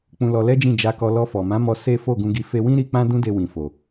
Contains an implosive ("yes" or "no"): no